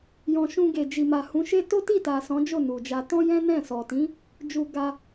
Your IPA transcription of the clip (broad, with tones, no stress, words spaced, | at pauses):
jɔ̃˨ ʃũ˧ɡe˨d͡ʒi˨ ma˨hũ˨˦ʃe˦ to˦ti˦˨ta˨ sɔ̃˨˦d͡ʒo˦˨ nu˨d͡ʒa˧ tɔ̃˦jɛ̃˦nɛ̃˦˨ sɔ˨tĩ˨˦ | d͡ʒu˧ɡa˧